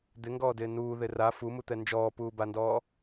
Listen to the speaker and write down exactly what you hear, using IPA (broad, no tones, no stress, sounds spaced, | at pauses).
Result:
d̪ ɪ ŋ ɡ ɔː d ɪː n uː ð ɪ r a f u m u t̪ ɛ n d͡ʒ ɔː p uː b a n d ɔː